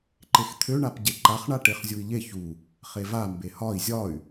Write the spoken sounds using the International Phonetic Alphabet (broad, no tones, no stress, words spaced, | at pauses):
ǃext̪ʰø ɳapɟeǃaχ ɳaʈeχzʲui̯ʎe çu | χeva mbehɒi̯ zʲɒy̯